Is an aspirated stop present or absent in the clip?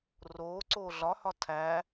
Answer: present